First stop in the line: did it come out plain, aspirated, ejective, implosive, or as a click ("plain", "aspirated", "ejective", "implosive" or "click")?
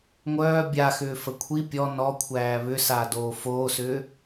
plain